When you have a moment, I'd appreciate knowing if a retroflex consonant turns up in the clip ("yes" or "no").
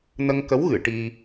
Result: yes